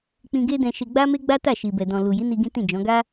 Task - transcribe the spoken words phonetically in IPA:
k͡p ĩ˧ ɡ e˦ d ɛ̃˧ ʃ e˧ ɡ͡b a˦ m e˦ ɡ͡b a˦ t a˦˨ ʃ i˨ b ɛ˨ d ɔ̃˨ l u˨ j i˨˦ n i˧ ɡ ĩ˦ t ĩ˦˨ d͡ʒ ɔ̃˨˦ ɡ a˦

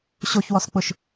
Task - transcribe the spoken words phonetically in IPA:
ɕ o ç w ɔ s k͡p ʊ ʃ

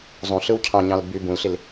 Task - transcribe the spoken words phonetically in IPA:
zˤ ũ ɬ ɯ w cʰ ɑ̃ ɲ ɑ̃ l b y b ũ l ɬ i l

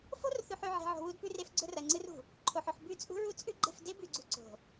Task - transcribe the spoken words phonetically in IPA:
f o̤˦ r θ ʉ˨ ħ ʉ˨ ʕ e̤˨ ʕ o̤˨ w u˦ d p ʉ˦ r e˦ f ɡ͡ǀ ɵ˦ r ɐ˨ ŋ͡ǀ ɨ˦ r ṳ˨ | ǃʰ o˨ ħ ɵ˨ ħ b ʉ˦˨ t͡sʼ ṳ˦ ɹ u˦ t͡sʼ ʉ˦ ɡ͡ǃ e̤˦˨ f d e˦ b ʉ˨ ɡ͡ǀ ṳ˨ ǀ o̤˨

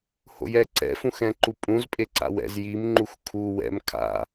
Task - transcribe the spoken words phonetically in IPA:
h o̰ j ɛ ǀ ɛ̰ f ũ x ɛ̃ ǃ u pʼ ũ z pʼ e ǀ a̰ w ɛ̰ z j i m ŋ͡ǃ u x kʰ u w ɛ̰ m kʰ a̰

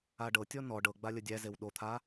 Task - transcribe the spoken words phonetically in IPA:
a ɖ ɤ tʲ ɔ n ɔ ɖ ɤ ɡ͡b a lʲ ə dʲ æ z e w ɗ o t̪ʰ a

